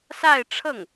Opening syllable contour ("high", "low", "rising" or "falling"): falling